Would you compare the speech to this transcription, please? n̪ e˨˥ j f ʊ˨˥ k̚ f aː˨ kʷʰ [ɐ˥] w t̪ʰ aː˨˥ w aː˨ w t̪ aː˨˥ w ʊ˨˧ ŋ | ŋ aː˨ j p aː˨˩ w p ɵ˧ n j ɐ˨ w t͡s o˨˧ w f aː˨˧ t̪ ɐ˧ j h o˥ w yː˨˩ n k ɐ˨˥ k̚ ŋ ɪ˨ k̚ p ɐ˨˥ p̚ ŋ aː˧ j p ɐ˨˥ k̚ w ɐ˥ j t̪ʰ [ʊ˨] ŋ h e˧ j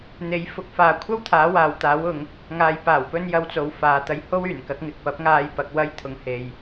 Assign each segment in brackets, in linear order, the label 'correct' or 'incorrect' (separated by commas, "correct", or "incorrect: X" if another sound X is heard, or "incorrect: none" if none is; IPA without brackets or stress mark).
correct, incorrect: ʊ˧